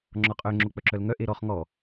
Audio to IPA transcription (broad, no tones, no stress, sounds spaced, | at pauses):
ŋ͡ǁ ɔ qʼ œ ŋ͡ǁ o k͡p œ ǁ œ l ŋ œ ʔ e ɾ ɔ χ ŋ ɔ